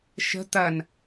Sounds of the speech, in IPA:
ʃ ə̤ t̪ ɐ n

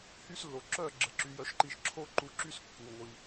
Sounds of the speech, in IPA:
h y˥ s lː o˩ ǁ œ˥˩ ɡ͡ǁ ə˧ ǁ y˩˥ j œ˧ ʃ ǃ i˥˩ ʃ ǁʰ o˥ ǃ u˧ ǁ y˥ s kː u˩ ŋʷ i˩

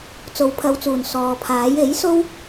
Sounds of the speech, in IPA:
t͡s o˨˥ w pʰ ɐ˨˧ w t͡s uː˨˩ n s ɔː˨ pʰ aː˨˥ j e˨˥ j s o˥ w

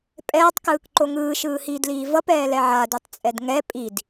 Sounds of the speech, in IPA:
pʼ ɛː tˤ k ɯː k ǃ o ŋ ɯː ʃ ɯː h iː d l iː v ʌ p ɛː l ɛ ʕ a d u tˤ t͡sʼ ɛ d ŋ ɛ pʼ i d

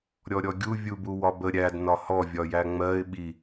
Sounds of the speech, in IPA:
ɾʲ ɔ ɾʲ ɔ ɡʲ u vʲ u b u w ɒ b ə ɾʲ æ d n ɒ h ɔ vʲ ɒ j æ ŋ͡m ɜ ɪ̯ ɓ i

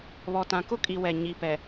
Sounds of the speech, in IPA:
β ɔ˨ t ã˨ k ʊ˦ kʼ i˨ w ɛ˨ ɲ i˨ p ɛ˨

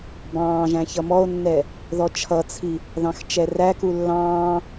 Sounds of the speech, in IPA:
b ɑ̃ː ʒ æ̃ ç ʌ m ɔ o̯ nː ɛ | ð ɔ t͡ʃʰ ʌ t͡sʰ i | ð ɑ̃ x t͡ʃ ɛ r æ k u lː ɑ̃ː

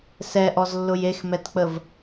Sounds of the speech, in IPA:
s ɛ ʔ ɔ z lː ʊ j e x m ɛ t k͡p ə v

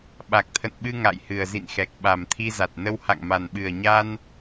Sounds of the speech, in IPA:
ɓ a˨˩ k̚ t̪ʰ ə̰˧˨ n ɓ ɨ˧ ŋ a̰˧˨ j h ɨ˨˩ ə̯ z ḭ˧˨ n x ɛ˨˩ k̚ ɓ a˨˩ m t̪ʰ i˧ z a˨˩ t̚ n ə˧ w h a̰˧˨ ŋ m a˨˩ n ɓ ɨ˨˩ ə̯ ɲ a˧ n

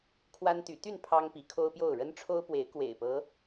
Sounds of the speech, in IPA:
kʰ w a˦ n t̪ y˨˦ t̪ y˥˨ n pʰ ɑ˦ ŋ p i˨˦ kʰ o˦ ʊ̯ p j o˥˨ ʊ̯ ɻ ə˦ n ʈ͡ʂʰ o˦ ʊ̯ p w e˨˦ ɪ̯ k w ḛ˨˩ ɪ̯ p ɤ˨˦

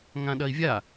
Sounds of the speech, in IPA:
ŋ ã ɗ ɐ i̯ vʲ a

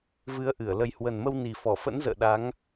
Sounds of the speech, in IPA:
v ɨ˨˦ ə̯ ʔ ɨ˧˩ ə̯ l ə˨˩ j h w ə˨˩ n m ə˧ w n i˨˩ f ɔ˧˩ f ə̰˧˥ n z ə̰ː˧˨ ɗ a˨˦ ŋ

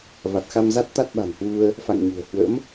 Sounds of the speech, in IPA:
v a˨˩ t̚ x a˧ m z a˦˥ t̚ t̪ a˦˥ t̚ ɓ a̤˨˩ n h w u˧ ə̯ | f a̰˧˨ ŋ ɲ ṳ˨˩ ə̯ h w ə̰˧˥ m

